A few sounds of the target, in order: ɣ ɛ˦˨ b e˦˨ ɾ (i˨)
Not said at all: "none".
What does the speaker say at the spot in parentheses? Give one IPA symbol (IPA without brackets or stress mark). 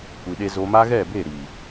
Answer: i˨